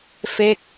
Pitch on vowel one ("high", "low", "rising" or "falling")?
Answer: falling